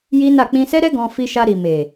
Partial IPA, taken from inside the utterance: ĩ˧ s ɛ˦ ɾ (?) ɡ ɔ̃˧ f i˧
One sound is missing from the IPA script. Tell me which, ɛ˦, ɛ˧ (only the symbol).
ɛ˦